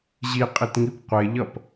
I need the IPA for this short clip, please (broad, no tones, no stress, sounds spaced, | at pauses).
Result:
ʑ i qʼ i t ŋ i p qʷ e ʎ ʌ p